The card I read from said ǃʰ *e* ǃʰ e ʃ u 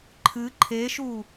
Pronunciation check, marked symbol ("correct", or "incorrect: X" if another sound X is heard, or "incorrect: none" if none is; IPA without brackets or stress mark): incorrect: ɨ